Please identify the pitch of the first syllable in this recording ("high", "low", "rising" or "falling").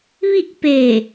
falling